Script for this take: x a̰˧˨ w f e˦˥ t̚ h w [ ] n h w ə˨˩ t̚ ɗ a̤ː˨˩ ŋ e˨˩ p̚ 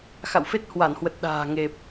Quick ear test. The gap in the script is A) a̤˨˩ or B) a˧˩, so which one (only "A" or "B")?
B